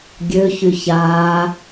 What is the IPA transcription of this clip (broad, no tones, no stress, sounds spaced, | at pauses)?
ɡʲ ø ç y ç aː